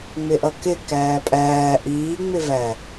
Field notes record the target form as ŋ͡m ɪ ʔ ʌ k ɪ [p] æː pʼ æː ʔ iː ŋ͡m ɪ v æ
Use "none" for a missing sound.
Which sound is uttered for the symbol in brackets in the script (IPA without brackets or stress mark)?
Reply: k